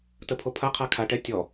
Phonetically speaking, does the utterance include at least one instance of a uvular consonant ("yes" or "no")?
yes